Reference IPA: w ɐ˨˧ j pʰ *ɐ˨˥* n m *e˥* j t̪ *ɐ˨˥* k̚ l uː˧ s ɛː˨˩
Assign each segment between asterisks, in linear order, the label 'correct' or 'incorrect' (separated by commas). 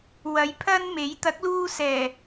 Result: incorrect, incorrect, correct